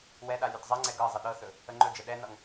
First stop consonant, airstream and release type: implosive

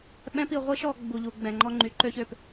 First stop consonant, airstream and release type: implosive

